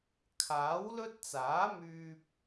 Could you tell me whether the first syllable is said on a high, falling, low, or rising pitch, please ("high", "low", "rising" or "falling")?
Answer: rising